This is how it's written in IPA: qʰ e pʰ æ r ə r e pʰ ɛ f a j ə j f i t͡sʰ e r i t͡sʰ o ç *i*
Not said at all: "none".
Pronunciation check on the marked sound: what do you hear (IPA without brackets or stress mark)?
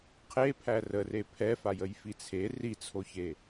e